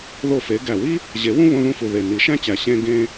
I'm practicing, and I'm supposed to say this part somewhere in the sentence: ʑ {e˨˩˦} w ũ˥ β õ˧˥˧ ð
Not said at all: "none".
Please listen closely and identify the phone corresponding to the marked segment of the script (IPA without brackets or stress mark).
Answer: e˨˩˦